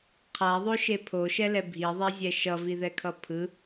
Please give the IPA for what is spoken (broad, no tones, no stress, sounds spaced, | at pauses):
qʰ a ðˤ o ʃ e pʰ o ʃ ɛ l ɛ bʱ i ðˤ ɛ zʲ ɛ ʃ ʌ v i ð ɛ kʰ ʌ pʰ ɯ